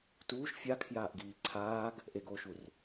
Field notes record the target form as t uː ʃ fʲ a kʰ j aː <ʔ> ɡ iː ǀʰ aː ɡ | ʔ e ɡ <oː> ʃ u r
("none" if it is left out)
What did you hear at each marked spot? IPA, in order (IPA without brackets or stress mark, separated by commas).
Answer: ʔ, oː